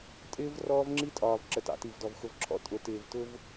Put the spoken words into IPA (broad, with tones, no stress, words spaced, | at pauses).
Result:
tʼɪː˦v rɔː˦vŋ͡ǁi˦tʼɒː˨v ǁə˨tɑ̰˨ti˨vdɔ˨v xʊ˨vǁʰɔ̰˨˦ tʼʊ˨ tɪː˨vtʊ˧v